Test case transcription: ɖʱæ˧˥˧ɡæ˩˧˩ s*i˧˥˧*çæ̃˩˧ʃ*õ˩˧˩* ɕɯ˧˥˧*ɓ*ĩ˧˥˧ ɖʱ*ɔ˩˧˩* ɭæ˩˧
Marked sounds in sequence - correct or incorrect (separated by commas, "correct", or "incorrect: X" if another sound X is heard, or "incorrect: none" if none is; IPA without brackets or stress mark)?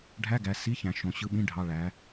correct, correct, correct, incorrect: ɑ˩˧˩